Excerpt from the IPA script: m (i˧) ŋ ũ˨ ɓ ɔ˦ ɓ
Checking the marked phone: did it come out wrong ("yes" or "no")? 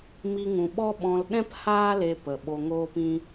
no